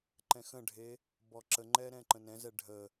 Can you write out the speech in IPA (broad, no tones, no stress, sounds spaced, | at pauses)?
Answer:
ǃ ɛ̃ x ə̃ ɖʱ e | b ɔ ǁ ə ŋ͡ǃ ɛ ɾ ɛ̃ ǃ ə̃ n ɛ̃ z ɛ ɖʱ ə